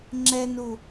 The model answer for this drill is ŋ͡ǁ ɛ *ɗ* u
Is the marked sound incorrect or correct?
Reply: incorrect